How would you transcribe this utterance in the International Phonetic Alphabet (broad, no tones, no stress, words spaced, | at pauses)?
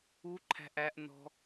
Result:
uǃʰæ̤ʔ æʔnɔ̤